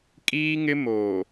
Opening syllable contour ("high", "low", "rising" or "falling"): high